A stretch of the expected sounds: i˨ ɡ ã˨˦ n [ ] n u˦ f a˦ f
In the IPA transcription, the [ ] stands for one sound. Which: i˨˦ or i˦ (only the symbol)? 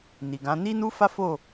i˦